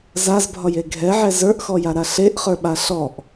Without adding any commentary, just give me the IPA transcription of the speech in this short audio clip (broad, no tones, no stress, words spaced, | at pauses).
zazbʱɒje ɡʱɛʕɛ zə˞ʔxɔjaɾa ɬeʔχə˞ɓa ɬɔʔ